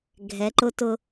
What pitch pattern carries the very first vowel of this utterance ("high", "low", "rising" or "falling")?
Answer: rising